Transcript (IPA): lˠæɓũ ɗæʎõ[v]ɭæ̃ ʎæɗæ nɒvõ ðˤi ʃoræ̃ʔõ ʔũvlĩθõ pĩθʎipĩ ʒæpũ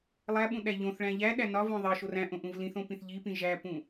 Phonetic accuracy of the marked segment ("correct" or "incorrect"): incorrect